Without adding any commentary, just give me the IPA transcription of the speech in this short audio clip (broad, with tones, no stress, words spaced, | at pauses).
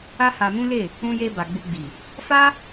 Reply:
a˦ha˧mũ˦le˦˨ | ũ˧je˧ ba˨ɡ͡bu˧ɡ͡bi˨ | fa˦